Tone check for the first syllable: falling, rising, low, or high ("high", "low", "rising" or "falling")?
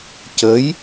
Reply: rising